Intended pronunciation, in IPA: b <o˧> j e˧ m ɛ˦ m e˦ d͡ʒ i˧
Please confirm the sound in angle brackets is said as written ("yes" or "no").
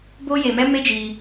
no